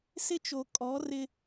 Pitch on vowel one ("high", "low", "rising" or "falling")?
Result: high